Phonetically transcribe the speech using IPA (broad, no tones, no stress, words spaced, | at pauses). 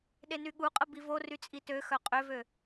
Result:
ɗenyɠuqʼə bivory t͡sʼitøxœ qʼøvø